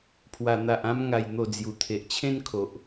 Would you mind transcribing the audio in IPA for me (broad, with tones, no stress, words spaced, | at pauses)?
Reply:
pʰwa˨˩n̪a˨ʔã˧m ŋa˨˩jn̪o˨˩ d͡zju˨˩t̪ʰe˨ʔt͡ɕʰẽ˦nkʰo˨ʔ